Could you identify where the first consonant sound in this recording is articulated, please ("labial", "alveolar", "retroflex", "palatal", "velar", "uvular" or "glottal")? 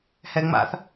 glottal